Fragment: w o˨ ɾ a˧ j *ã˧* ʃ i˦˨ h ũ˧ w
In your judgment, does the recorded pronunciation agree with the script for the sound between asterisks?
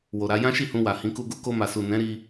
no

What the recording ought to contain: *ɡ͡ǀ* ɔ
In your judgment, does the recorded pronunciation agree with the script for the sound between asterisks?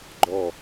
no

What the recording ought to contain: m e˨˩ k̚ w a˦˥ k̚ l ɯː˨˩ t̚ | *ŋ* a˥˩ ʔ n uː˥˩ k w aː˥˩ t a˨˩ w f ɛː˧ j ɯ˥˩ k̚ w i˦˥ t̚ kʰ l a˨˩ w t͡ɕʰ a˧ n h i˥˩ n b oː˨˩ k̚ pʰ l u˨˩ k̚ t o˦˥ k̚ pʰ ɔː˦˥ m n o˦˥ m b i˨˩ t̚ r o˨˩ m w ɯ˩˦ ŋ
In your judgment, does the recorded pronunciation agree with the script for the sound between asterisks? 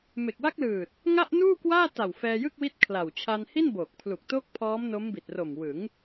yes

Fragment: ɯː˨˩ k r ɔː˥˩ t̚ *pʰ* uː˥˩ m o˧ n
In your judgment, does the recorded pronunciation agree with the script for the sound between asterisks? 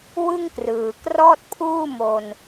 yes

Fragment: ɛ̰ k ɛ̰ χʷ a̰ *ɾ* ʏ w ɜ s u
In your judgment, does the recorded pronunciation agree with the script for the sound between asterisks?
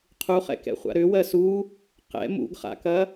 yes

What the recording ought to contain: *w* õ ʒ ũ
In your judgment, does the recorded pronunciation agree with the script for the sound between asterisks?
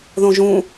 no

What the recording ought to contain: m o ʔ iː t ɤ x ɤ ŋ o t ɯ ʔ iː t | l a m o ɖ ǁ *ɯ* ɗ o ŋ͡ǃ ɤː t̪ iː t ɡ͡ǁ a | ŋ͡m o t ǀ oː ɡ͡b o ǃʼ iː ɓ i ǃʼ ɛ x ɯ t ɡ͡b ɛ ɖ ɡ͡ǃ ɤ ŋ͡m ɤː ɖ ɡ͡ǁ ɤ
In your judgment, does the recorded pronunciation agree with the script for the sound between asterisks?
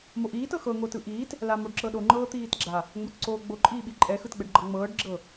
no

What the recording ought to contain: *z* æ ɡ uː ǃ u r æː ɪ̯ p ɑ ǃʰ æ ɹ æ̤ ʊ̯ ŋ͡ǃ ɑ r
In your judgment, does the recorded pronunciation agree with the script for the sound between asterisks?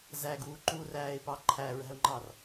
yes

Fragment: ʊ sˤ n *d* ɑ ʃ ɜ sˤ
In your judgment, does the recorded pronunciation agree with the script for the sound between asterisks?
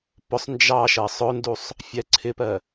no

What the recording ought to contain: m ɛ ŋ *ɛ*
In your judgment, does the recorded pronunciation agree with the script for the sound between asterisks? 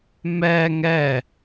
yes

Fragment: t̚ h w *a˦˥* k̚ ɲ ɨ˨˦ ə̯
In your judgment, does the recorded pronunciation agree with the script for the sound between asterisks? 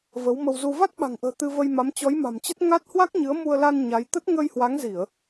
yes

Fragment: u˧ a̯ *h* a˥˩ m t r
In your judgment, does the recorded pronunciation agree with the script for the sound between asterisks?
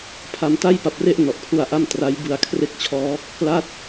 no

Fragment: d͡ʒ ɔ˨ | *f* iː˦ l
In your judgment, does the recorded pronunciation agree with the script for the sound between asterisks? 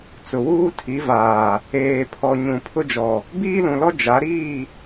no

